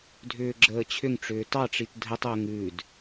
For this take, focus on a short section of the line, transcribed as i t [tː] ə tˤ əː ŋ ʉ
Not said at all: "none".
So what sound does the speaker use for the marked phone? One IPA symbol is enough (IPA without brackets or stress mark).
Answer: dʱ